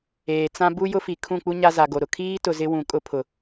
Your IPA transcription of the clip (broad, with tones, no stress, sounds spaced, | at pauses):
eː˨ t͡s ã˦ b u˦ j ʊ˦ f i˨ kʰ ũ˦˨ k͡p u˦ ɲ a˦ z a˨ ɡ o˨ ɾ ʊ˨ kʰ iː˦ t ʊ˨ z ɪ˦ w ũ˨ kʼ ʊ˦ pʰ ʊ˨